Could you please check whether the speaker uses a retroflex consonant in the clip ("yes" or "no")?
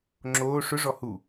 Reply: yes